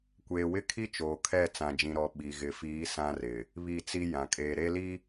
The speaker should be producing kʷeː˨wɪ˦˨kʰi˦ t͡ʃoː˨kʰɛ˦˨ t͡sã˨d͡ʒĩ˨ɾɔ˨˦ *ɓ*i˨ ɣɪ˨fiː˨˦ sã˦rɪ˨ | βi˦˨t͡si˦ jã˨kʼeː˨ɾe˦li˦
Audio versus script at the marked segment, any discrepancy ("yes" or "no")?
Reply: no